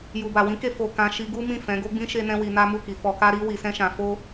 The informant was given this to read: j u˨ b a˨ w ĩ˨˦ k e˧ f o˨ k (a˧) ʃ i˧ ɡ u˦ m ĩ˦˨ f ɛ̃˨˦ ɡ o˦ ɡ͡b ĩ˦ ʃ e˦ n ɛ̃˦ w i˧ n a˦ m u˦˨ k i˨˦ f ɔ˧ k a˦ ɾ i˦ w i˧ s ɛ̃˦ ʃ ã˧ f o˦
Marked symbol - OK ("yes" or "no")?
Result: no